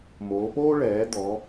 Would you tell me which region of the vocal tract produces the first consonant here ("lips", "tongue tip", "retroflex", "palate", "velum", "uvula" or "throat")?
lips